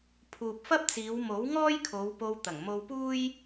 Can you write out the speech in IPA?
pʰ uː˨ p̚ f ɐ˥ p̚ t͡s iː˨˧ w m o˨˥ w ŋ ɔː˥ j kʰ o˨˧ w p o˧ w t̪ ɐ˨˩ ŋ m o˧ w p uː˥ j

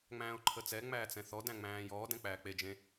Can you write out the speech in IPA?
ŋ͡m æ̃ː ʊ̯ ǃʰ ə t͡s ɛ ŋ͡m æː t͡s ɛ̃ θ ɔ d æ̃ ŋ͡m æ̃ː j ɔː d ɛ̃ k͡p æː k͡p e d͡ʒ ẽ

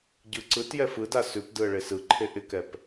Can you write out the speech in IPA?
ɟ ɯ ǀ ɯ t j ɛ f ɯ d a s ʉ p d ɯ ə̯ ɭ e s ɯ ǃʰ e ʔ ɪ k ɛ p

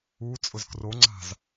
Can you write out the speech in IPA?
u t͡sʼ ʊ z k r o ŋ͡ǀ a̤ z

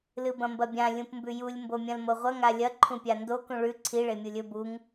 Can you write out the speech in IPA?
l ɨ b ɐ̃ m b ɐ bʲ ã lʲ ũ p m b ʉ j u lʲ m b o mʲ ɐ̃ l m o ʁʷ ɐ ŋ a lʲ ɐ ǃʰ ũ pʲ a n d o k ũ ɭ ʉ ǀʰ i ɭ e mʲ u lʲ ɵ b u ŋ

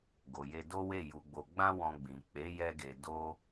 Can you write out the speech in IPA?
ɡ o˨ j e˧ d o˦ w e˦˨ j u˨ ɡ͡b o˨ ɡ͡b ã˧ w ɔ̃˧ ɡ͡b ĩ˨ k͡p e˨˦ j ɛ˧ ɡ e˨ d o˧

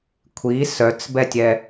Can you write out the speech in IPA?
kʷʰ i s œ t͡s b ɛ tʲ ɛ

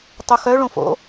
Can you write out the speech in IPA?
tˤ u x œ ɭ õ f o̰

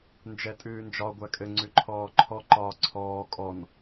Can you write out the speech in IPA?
n d͡ʒ ɛ tʼ ʉː n d͡ʒ ɒ ɡʷ æ kʼ ɘ ŋ͡ǀ ʉ ǃʰ ɔː ǃʰ ɔ ǃ ɒː ǀʰ ɔː kʼ ɔ n

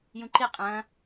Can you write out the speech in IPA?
j ũ ǃ i qʼ ɐ̃

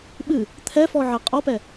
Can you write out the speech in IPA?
ɓ ɨ | t̪ʰ ɛ f ɔ ʕ ɛ qʼ ɔ p ɛ

